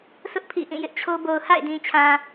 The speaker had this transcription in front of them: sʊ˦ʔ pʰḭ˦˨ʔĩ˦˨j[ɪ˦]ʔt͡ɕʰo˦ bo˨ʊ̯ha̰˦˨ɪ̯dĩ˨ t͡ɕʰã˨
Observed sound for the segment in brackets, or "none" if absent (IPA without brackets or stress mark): ɪ˦